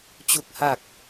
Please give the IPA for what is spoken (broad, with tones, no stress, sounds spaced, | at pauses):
t͡ɕ u˨˩ k̚ h a˨˩ k̚